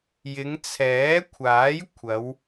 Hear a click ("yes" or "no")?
no